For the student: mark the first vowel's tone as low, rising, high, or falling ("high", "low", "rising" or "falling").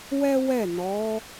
high